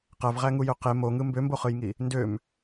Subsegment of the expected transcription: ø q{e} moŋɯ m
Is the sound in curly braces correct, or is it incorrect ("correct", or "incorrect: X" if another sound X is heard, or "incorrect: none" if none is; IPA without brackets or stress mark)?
correct